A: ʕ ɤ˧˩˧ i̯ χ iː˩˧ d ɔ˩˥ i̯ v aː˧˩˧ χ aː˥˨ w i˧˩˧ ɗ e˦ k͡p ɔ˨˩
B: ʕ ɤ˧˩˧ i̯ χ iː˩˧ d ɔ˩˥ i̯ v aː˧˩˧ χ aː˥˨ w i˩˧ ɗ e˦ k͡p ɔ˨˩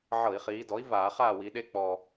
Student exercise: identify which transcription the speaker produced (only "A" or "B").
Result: B